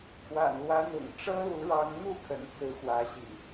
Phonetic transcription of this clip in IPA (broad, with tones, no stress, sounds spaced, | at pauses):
kʰ w a̰˨˩ n l w ä˨˦ n̪ ʊ̰˨˩ ŋ ʈ͡ʂ ɤ˦ l u˨˦ ɻ ɑ˨˦ ŋ n̪ u˥˨ kʰ ə̰˨˩ n t͡s ɹ̩˨˦ x w ä˨˦ ɕ ḭ˨˩